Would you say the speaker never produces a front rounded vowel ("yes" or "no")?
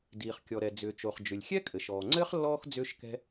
no